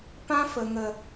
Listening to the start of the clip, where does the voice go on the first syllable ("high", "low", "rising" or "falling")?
high